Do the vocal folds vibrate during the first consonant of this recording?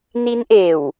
yes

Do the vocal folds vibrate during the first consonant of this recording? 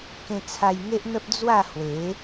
no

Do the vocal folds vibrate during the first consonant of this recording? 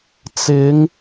no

